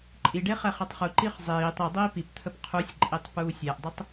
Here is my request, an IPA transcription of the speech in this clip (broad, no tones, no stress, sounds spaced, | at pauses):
ǃʼ i ɖ e χ ɛ χ e tˤ χ u ǃ iː χ zˤ iː tˤ i dˤ iː p i p t̪ʰ ə p qʰ u sʲ ǃʼ i tˤ p uː sʲ ɛ ʔ dˤ u tˤ